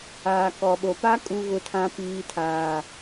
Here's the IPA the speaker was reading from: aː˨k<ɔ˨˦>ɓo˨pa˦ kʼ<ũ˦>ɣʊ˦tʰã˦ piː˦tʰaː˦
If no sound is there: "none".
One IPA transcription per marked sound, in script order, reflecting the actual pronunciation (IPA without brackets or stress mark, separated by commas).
ɔ˨, u˦